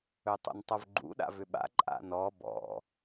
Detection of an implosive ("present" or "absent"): present